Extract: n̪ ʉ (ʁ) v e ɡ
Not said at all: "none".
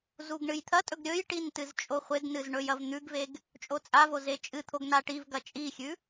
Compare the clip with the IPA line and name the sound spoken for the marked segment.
ɡ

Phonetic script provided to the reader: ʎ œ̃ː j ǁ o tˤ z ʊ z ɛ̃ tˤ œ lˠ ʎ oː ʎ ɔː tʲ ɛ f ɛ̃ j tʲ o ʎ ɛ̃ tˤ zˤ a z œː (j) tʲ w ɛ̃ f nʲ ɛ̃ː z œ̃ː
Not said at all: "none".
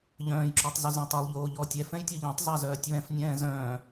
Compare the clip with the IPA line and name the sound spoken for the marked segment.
none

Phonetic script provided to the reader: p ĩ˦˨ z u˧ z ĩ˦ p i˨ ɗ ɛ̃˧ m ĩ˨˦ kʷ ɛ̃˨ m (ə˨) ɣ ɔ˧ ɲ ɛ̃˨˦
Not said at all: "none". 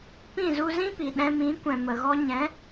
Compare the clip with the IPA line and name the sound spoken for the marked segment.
ə˨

